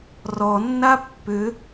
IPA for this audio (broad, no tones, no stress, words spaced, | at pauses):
rɔnːa pːʏ